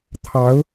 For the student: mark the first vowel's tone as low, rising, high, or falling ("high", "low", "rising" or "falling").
rising